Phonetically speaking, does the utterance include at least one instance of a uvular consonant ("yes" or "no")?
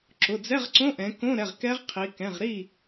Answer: yes